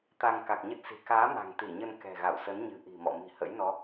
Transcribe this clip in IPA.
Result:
t̪ a˧ ŋ k a˨˩ k̚ ɲ ə˦˥ t̚ s i̤˨˩ k aː˨˦ m a̤˨˩ ŋ t̪ i˧˩ ɲ ə˧ n k ɛ̤˨˩ ɣ a̰˧˨ w s ə˨˦ n ɲ ɨ̤˨˩ ʔ i̤˨˩ m ɔ̰˧˨ m i̤˨˩ h ə̰˧˥ j n ɔ˨˦

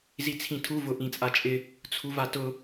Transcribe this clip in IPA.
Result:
z i t͡sʰ ĩ tʰ u v ʊ ʔ ĩ t͡sʼ a t͡ʃʼ ɪ | t͡sʰ u v a t ʊ

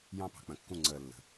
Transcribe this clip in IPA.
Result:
j ɑ̃˦ p ɑ̤˨ k͡p ə̃˨ kː ũ˦˨ ŋ͡ǀ əː˨ lː ə̤˨

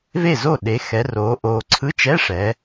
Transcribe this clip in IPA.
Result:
v e˥˨ z o˥˨ ɗ e˨˦ x ɛ˨˦ r oː˨˦ ʔ oː˨ ǀʰ ɯ˧˥˧ t͡ʃ ɛ˧˥˧ ʂ ɛ˨˦

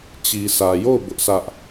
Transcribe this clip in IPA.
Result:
t͡ɕ i˨ s ä˨ j o˦˨ ʊ̯ b ʊ˦ ʔ s ä˦ ʔ

